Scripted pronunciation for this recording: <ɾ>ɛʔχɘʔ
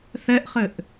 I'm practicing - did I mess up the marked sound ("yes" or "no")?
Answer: yes